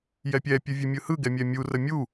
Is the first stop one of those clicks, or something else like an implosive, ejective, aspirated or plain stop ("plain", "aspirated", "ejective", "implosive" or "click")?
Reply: plain